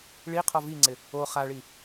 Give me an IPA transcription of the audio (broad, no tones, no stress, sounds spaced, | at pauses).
ɭ i qʰ ɔ v i ŋ͡ǀ ɪ | o χ a ɭ i